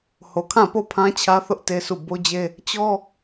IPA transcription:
h o˨ kʰ ã˦˨ p o˦˨ pʰ ã˦ t͡ɕʰ ä˦ θ ʊ˦ ʔ t e˦ sʰ u˦˨ b o˦ d͡ʑ e˦ | t͡ɕ ɔ˦

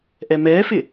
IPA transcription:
ʔ ɛ m ɛ f ɪ

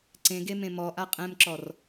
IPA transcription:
ǀ ẽ ɡ e m ẽ m ɔ ʔ a qʼ ɛ̃ m ǁ ɔ r

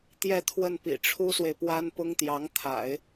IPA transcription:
t̪ j ɛ˥˧ t̪ʰ w ə˥˩ n p ḭ˨˩ ʈ͡ʂʰ u˥ s w e˨ ɪ̯ p w a˥ n p ʊ˥ ŋ t̪ j ɑ˧˥ ŋ t̪ʰ a̰˨˩˦ ɪ̯

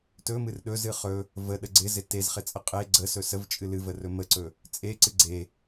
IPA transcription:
t ɵ m ɨ r ɗ ɵ z ɨ χ ɵ | v ə ɗ ə ɡ͡ǀ ɪ z ɪ t e z χ ɪ t͡sʼ ə qʼ e ɡ͡ǀ ə s ɵ s ə v t͡ʃʼ ɨ l ɨ v ə r ɵ m ə ǀ ɵ | t͡sʼ e ǀ ɨ ɡ͡ǀ e

